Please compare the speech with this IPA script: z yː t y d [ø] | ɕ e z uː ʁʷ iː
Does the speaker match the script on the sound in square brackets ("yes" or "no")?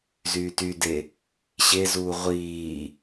no